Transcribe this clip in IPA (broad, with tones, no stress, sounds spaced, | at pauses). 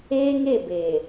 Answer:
eː˦ ŋ e˦˨ b e˨